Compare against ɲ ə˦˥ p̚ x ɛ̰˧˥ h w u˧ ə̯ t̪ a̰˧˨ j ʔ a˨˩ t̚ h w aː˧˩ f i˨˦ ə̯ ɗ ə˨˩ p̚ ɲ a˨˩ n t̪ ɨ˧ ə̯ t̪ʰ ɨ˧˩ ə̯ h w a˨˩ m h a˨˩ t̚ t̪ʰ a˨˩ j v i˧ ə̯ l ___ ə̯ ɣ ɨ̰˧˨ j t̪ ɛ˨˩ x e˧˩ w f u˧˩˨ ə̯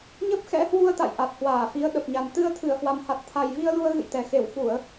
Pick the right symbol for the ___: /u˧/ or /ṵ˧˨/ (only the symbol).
u˧